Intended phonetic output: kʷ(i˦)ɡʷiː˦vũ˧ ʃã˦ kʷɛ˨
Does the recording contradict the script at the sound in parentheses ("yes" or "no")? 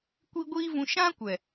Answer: no